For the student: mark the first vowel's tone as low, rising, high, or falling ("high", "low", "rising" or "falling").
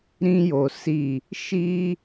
high